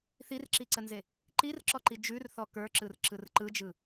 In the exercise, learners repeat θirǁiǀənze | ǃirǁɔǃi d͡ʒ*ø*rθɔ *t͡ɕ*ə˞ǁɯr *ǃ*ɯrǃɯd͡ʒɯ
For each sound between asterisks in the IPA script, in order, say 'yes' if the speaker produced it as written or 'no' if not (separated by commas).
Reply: no, no, no